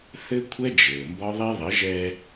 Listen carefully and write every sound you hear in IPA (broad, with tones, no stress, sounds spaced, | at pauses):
θ ɘ˦ kʷʰ ɛ˦ d͡ʒ ɘː˨ m b ɒ˦ ðˤ i˦ ðˤ ɘ˨˦ ʒ ɛ˦